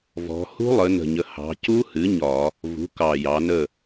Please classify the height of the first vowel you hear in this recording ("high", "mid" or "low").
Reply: mid